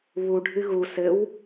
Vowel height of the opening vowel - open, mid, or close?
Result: close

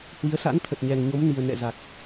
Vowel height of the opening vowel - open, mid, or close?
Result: close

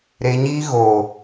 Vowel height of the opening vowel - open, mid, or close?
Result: mid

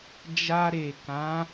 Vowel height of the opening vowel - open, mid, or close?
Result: open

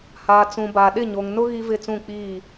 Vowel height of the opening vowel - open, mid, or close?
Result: open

